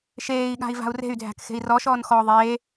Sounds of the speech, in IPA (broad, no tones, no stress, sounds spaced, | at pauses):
ʃ eː i̯ ɠ a̤ i̯ v a̤ u̯ r e̤ y̯ dʱ æ̤ k x e̤ i̯ r ɔ ʃ ɔː n x ɔ ðˤ eː